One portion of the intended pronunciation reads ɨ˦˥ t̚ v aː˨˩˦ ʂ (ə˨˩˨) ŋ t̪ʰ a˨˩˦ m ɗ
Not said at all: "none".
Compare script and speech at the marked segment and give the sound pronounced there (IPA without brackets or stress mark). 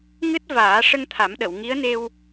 ə˧